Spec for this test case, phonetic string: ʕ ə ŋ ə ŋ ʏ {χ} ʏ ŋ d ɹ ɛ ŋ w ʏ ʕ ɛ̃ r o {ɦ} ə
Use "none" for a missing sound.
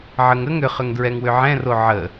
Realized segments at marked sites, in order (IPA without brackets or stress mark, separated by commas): χ, ʕ